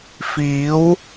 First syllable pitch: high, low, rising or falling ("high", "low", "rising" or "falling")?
rising